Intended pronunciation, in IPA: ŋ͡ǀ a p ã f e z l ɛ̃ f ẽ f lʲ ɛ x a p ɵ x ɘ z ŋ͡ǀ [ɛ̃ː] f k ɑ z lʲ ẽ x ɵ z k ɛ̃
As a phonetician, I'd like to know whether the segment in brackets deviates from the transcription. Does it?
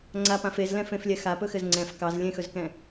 yes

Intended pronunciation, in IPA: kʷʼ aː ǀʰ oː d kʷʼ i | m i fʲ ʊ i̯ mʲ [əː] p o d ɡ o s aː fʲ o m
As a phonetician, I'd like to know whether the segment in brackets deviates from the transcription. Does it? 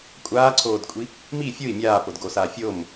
yes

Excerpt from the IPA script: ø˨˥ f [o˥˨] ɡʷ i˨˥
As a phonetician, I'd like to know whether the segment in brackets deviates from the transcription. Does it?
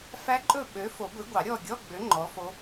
yes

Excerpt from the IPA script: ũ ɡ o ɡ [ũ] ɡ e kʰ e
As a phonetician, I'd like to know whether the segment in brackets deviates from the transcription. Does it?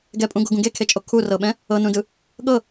no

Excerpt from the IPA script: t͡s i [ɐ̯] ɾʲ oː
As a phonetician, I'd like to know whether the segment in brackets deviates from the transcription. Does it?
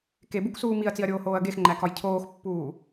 no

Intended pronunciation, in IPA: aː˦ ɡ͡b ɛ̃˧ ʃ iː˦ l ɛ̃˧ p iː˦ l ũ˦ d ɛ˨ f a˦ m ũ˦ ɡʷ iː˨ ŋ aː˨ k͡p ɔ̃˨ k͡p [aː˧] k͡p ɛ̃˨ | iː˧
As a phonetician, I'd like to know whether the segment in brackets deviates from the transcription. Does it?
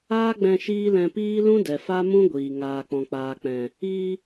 yes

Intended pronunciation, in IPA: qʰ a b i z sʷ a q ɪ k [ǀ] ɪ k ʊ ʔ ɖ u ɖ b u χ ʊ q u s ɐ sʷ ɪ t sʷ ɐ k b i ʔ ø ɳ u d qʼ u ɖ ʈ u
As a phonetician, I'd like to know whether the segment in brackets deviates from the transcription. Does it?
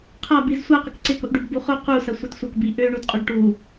no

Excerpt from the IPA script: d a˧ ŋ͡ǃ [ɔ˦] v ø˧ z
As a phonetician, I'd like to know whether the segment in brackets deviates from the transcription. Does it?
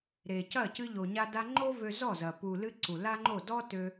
yes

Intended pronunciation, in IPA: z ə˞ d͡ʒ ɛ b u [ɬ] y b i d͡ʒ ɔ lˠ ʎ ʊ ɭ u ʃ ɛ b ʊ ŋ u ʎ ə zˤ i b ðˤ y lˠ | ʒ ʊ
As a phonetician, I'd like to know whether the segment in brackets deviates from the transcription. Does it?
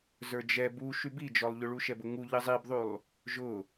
yes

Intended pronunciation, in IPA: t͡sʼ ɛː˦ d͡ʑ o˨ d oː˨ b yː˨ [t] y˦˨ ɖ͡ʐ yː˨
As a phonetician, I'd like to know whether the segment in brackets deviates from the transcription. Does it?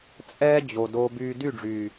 yes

